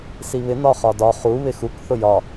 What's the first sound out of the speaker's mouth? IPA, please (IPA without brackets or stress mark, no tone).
s